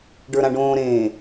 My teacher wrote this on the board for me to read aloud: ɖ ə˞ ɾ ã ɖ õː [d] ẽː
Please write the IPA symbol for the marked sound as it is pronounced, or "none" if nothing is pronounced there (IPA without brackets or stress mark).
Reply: ɾ